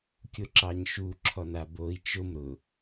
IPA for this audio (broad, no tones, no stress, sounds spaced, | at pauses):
kʲ ʊ ǁ ɑ ɲ ʃ u ǁʰ ɔ n a b o i̯ t͡ʃ ʊ m ɾ ʊ